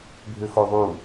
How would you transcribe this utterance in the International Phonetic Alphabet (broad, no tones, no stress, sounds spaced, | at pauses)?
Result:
bʱ ʏ x o ðˤ u